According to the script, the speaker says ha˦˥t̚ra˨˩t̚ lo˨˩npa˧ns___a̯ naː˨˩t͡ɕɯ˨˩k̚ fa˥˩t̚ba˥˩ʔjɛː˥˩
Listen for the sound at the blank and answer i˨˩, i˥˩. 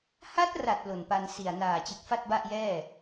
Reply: i˨˩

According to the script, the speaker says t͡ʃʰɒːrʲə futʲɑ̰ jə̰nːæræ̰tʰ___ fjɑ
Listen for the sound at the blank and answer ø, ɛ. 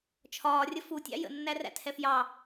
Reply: ɛ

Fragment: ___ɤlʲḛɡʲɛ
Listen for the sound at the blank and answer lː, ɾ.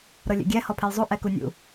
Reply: ɾ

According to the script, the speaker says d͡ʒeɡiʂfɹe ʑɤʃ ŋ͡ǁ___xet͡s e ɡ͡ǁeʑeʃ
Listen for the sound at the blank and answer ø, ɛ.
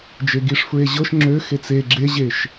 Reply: ø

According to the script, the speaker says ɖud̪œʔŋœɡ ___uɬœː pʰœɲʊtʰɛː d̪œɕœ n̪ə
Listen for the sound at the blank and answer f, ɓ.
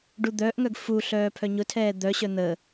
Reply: f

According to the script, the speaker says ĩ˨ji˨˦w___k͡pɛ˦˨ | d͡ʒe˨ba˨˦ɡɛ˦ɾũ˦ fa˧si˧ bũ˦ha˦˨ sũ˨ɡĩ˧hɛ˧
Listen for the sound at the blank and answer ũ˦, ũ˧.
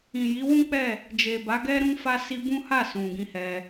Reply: ũ˦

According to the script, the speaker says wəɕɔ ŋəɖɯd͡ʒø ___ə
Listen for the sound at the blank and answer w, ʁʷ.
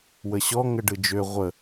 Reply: ʁʷ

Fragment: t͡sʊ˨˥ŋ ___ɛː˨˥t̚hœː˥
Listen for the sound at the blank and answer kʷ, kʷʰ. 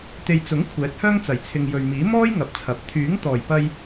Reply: kʷʰ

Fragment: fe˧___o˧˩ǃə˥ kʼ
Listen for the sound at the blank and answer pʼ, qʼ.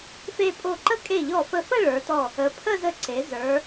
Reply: pʼ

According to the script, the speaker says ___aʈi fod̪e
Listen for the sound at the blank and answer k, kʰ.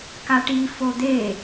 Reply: k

